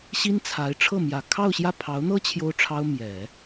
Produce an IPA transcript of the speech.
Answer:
ɕ i˥ n t͡sʰ a˧˥ ɪ̯ ʈ͡ʂʰ ɤ˥˩ m j ä˨˩ kʰ ɑ˥˧ ʊ̯ ɕ j ä˥˩ pʰ ɑ˧˥ ʊ̯ n̪ ɤ˥ t͡ɕʰ j o˥ ʊ̯ ʈ͡ʂʰ ɑ˥ ʊ̯ m j ɛ˨˩˦

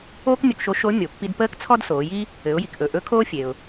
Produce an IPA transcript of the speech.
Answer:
oː˥ k mʲ ɵ˧ k ʃ o˧˥ ʃ o˧˥ mʲ o˩˧ pː i˧ d p əː˥ k t͡sʰ ɔ˥ d s oː˩˧ j i˥ | ɘ˩˧ ʊ̯ j i˩ k ʔ ɵ˩ ʔ ɵ˧˥ kʰ oː˥ fʲ e˩ ʊ̯

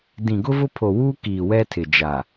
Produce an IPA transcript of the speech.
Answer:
d ĩ˨ ɡ ʊ˦ v ʊ˦ pʰ o˨ w uː˦ k iː˨ w ɛ˦ tʰ ɪ˨ d͡ʒ a˨

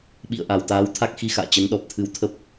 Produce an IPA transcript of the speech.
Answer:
ɓ ḭ˧˨ ə̯ ʔ a˨˩ w t̪ aː˨˦ w t̪ʰ a˦˥ k̚ x i˧ x a̰ː˧˨ t͡ɕ ə˨˦ n ɗ ɔ˨˩ p̚ t̪ʰ ɨ˧ w t̪ʰ ə˦˥ p̚

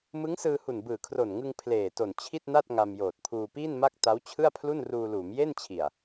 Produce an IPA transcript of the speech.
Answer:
m ɯ˦˥ ŋ s ɯː˧ h u˨˩ n b ɯː˨˩ kʰ r o˨˩ n ŋ ɯ˧ ŋ pʰ l eː˨˩ t o˨˩ n t͡ɕʰ i˥˩ t̚ n a˥˩ t̚ ŋ a˧ m j oː˨˩ t̚ pʰ uː˧ p iː˥˩ n m a˥˩ k̚ t a˦˥ w t͡ɕʰ ɯ˥˩ a̯ pʰ l u˥˩ n r uː˧ l uː˩˦ m j e˥˩ n t͡ɕʰ i˨˩ a̯

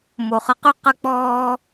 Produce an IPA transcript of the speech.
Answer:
m o˩ χ ə˨ q y˥ q ə˦ k͡p ɔː˦

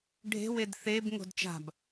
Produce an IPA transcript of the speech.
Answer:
ɖʱ e̤ w e d θ e b ŋ o̤ d t͡ʃ a̤ b

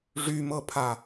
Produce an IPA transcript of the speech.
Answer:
ʐ y m ɤ pʰ a

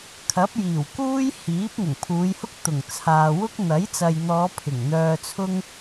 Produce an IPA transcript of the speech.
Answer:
kʰ ɐ˨˥ p̚ j iː˨˩ w k uː˥ j h iː˨˥ p̚ ŋ ʊ˨˩ ŋ pʰ uː˨˧ j h ʊ˥ k̚ t̪ ʊ˨˩ ŋ t͡sʰ aː˨ w ʊ˥ k̚ n̪ ɐ˨˥ j t͡s ɐ˨ j n̪ ɔː˨˧ pʰ ɪ˨˩ ŋ n̪ œː˧ t͡sʰ ʊ˥ ŋ

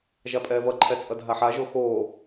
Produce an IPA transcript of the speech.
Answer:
ʒ a pʼ ɛː v ʌ ǃʰ ɛ t͡sʼ ʌ dʱ a ħ a ʒ o x oː

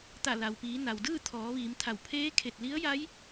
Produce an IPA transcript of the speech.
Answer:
t̪ a˧˩ l a˩ w p iː˩˧ n a˩ w d ɯː˥˨ t̪ʰ ɔː˩˧ ʋ iː˩˧ m t̪ʰ a˧˩ w pʰ eː˧˥ kʰ e˧˩ t̚ l i˧˥ ə̯ j a˧˥ j

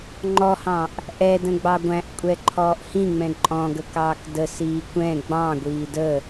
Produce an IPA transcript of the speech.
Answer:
ŋ͡ǃ ɔ h ɑ̃ ʔ | ʔ ɛ d ə̃ ɡ͡b ɑ ɡʷ æ̃ ʔ kʷʼ ɛ ǃʰ ɔː ʔ h ĩ ŋ͡m ɛ̃ ǃʼ ɔ̃ ɡ ə k ɑː k d ə s iː kʷ ɛ̃ ɡ͡b ɑ̃ ɡʷ iː d ə

